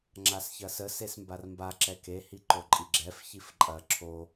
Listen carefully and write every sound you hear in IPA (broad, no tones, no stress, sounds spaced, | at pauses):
ŋ͡ǁ a s ç ɐ s ə s e s m b a r m b a ǁ ɛ k e h i ǃ o ǃʼ i ɡ͡ǁ ɛ f ç i f ǃʼ ɐ ǁʰ o